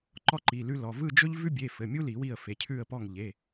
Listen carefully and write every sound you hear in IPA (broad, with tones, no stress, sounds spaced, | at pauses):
ǃ ɔ˦ ǃ i˩˧˩ l ʉ˦ l ɔ˩˧˩ v ɯ˦˨ d͡ʒ ɵ˦ ʎ v ʉ˦ bʲ e˩˧˩ f ɘ˩˧˩ mʲ u˦ l i˨˩˦ w i˦˨ ə̯ f e˩˧˩ cʰ ʉ˦˨ ə̯ p ɔ˦˨ ŋ ʎ e˩˧˩